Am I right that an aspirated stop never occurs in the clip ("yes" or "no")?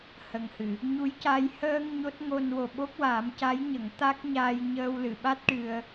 yes